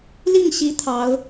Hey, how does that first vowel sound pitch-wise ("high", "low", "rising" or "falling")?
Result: falling